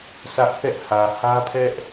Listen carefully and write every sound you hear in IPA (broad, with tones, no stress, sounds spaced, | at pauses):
sʰ ä˦ ʔ θ ɛ˦ ʔ h ä˨ h ä˦ pʰ ɛ˦ ʔ